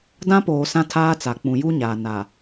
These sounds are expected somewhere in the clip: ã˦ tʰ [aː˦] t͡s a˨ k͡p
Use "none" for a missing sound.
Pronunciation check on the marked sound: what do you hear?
aː˦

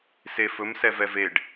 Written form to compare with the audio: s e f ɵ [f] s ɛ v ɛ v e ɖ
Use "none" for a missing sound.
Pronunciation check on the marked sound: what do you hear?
m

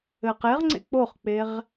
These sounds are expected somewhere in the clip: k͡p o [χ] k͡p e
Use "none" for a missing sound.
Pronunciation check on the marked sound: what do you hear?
χ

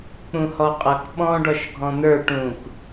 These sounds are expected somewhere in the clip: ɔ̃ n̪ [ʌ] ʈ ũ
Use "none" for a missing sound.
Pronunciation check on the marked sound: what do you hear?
ə˞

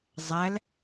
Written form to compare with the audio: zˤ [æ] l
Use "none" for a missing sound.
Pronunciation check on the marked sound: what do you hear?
æ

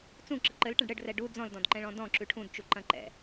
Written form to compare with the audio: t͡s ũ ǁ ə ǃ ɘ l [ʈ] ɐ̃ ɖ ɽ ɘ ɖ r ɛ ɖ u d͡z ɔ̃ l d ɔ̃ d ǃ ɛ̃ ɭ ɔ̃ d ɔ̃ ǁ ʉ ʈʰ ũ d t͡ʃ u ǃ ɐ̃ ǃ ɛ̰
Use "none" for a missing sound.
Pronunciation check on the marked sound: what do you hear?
ʈ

